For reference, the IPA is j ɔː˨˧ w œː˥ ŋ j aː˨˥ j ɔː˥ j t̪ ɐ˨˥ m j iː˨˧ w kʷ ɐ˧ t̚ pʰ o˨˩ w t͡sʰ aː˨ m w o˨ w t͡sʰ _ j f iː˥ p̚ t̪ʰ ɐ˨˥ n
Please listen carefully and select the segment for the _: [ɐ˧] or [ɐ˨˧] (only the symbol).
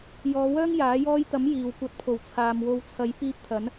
ɐ˨˧